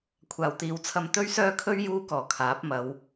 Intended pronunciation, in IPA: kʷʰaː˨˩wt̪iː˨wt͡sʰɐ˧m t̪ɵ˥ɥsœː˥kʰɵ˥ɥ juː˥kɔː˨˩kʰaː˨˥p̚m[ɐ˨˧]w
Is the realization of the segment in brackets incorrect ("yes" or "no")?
no